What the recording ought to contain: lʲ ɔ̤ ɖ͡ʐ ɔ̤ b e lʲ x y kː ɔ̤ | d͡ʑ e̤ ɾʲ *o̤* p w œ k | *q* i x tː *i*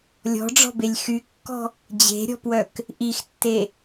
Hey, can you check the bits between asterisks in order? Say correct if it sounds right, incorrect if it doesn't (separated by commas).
incorrect, incorrect, incorrect